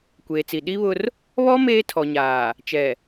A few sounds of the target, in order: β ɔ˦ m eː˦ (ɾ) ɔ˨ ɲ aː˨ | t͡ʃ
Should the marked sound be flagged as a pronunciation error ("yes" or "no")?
yes